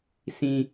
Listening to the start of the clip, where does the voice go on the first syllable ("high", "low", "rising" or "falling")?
low